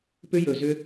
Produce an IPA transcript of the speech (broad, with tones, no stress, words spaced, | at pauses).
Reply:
pʏ˧jɵ˨˩zʏ˧